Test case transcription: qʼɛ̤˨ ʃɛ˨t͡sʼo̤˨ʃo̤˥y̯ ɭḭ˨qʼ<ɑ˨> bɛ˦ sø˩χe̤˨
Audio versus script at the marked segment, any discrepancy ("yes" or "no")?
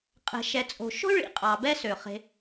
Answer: no